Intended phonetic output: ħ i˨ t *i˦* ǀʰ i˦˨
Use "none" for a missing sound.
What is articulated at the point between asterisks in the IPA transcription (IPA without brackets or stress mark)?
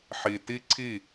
i˦